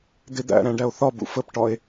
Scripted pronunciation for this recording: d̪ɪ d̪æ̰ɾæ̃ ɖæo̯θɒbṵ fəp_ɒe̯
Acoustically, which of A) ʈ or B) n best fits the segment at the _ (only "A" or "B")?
A